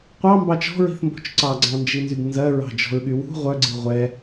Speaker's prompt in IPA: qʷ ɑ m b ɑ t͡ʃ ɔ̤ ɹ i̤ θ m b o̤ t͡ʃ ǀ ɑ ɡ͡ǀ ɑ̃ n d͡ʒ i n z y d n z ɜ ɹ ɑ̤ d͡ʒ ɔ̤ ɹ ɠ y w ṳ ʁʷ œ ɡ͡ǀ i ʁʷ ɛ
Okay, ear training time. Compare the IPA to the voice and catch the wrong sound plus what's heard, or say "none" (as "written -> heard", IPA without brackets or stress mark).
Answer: none